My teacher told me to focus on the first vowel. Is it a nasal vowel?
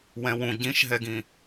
yes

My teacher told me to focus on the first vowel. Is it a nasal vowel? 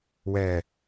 no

